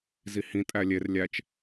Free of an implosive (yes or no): yes